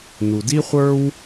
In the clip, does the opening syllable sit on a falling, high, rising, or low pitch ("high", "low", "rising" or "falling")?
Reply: low